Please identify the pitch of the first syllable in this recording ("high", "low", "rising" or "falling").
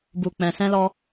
low